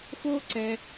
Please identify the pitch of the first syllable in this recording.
high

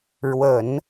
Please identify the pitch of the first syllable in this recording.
low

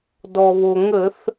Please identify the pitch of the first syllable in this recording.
low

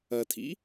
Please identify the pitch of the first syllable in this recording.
low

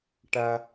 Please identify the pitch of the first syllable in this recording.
high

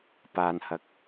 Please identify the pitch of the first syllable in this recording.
low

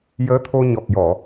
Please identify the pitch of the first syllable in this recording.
rising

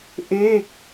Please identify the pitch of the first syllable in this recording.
falling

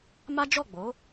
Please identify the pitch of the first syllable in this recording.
high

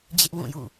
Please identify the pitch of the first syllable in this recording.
high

